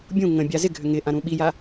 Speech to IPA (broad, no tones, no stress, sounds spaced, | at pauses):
bʲ ũ ŋ ə̃ bʲ a z ɪ ɡʱ ʏ ŋ ɪ ʔ ã ɾ ũ ɓ i j a